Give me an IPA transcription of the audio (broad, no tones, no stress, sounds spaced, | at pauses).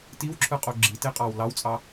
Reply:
t i w ǁʰ ɯ qʼ o ɡ͡ǁ i t e qʼ ɑ w l ɑ w t͡sʼ ɑ